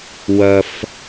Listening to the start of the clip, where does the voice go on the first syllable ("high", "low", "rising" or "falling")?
high